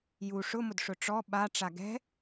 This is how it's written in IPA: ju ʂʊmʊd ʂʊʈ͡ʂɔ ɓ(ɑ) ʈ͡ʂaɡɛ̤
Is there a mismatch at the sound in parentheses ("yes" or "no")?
yes